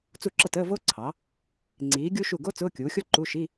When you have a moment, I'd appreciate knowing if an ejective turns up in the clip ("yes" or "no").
no